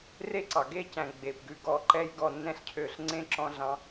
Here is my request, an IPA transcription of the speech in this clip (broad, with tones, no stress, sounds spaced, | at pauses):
r e˦ ǀ ɑ˨ ɡ e˦˨ c æ̃˨ ɡ͡b e˨ p ɡ ʉ˧ ɡ ɔ˨ ǃ ɛ˧ j ɡ ɔ˨ nː ɛ̃˧ ɬ cʰ ø˨ ɬ ŋ͡ǀ ẽ˦ ǁ ɔ̃˧ ɮ ɑ̃˧